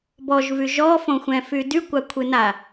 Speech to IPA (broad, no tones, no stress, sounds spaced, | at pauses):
b ɔ ʒ v y ʒ ɔ f õ xʷ ɛ̃ f y d y kʷ a kʷʰ ɨ n a